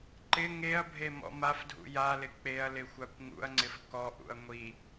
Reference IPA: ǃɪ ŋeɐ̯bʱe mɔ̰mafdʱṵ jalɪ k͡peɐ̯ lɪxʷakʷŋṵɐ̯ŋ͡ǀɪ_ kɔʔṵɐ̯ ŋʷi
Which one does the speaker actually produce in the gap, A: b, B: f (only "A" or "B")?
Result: B